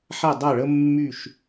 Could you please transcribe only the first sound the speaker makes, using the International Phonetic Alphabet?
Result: ħ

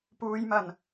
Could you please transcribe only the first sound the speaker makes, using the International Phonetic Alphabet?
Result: p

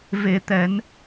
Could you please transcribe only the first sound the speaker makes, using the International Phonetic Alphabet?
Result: v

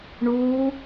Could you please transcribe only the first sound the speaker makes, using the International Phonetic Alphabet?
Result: ɳ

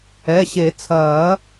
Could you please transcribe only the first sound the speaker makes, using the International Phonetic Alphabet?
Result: ɛ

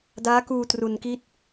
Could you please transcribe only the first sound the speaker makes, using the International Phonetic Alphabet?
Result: d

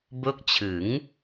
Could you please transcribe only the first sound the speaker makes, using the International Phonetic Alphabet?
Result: b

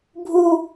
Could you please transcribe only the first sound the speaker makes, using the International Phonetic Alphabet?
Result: bʱ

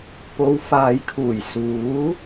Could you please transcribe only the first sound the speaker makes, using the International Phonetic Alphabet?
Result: p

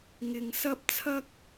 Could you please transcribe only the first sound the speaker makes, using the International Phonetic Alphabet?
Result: ŋ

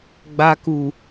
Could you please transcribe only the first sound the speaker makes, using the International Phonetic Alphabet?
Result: ɡ͡b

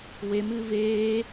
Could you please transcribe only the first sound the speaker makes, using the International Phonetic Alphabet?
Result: w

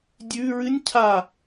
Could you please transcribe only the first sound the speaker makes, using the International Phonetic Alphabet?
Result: dʲ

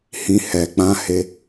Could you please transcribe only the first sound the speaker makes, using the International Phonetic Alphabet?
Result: h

